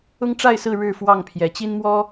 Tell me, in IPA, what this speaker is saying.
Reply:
ʊ˦ ŋ ʈ͡ʂ a˥˨ ɪ̯ s ɹ̩˥˨ ɻ ɻ̩˥˨ f w ɑ˥˨ ŋ pʰ j ɛ˨˦ t͡ɕ i˦ n m w ɔ˦

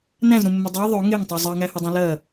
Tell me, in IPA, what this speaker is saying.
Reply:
n æ̃ z ɾ ũ mː ɵ dˤ æ ðˤ ɵ ŋ e ŋ tˤ u zˤ ɜ ŋ æ h ɵ dˤ ũ l ɜ

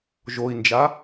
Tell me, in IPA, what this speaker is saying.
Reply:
ʒ o i̯ n d͡ʒ a

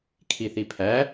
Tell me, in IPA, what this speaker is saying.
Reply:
kʰ i θ i pʰ æ

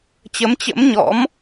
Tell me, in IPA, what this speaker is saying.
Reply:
t͡ɕ ə˨˦ m t͡ɕ ə̰˧˥ m ɲ ɔ̰˧˥ m

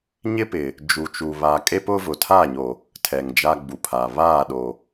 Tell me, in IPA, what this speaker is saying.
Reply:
ɲ ɪ˦ p ɪ˨ | d͡ʒ u˨ t͡ʃ u˨ β a˨ kʼ e˦ p ʊ˦ v ʊ˨ tʰ a˦˨ ɲ o˨ | tʰ ɛ˨ ŋ d͡ʒ a˦ ɡ͡b u˨ pʰ a˨ β aː˦˨ ɗ o˨

